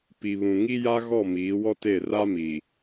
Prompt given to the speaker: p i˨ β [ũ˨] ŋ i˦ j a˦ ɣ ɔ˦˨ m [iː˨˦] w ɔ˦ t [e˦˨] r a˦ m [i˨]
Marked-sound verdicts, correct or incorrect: correct, correct, correct, correct

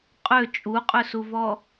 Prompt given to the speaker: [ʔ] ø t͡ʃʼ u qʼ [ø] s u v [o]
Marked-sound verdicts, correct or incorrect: incorrect: qʼ, correct, incorrect: ɔ

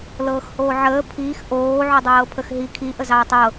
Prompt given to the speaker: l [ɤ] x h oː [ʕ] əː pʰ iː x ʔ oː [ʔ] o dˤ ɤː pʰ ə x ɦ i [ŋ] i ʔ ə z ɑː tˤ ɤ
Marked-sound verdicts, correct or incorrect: incorrect: ɤː, correct, incorrect: ʕ, incorrect: kʰ

